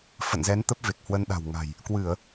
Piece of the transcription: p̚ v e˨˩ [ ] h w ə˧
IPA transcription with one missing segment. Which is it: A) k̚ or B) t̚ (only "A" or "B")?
A